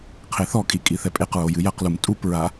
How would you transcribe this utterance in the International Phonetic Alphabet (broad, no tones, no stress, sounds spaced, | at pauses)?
qʰ e θ ɔ kʼ i kʼ i θ ɛ pʼ e q ɹ o j ɨ j ɐ q l u m tʼ u p ɹ a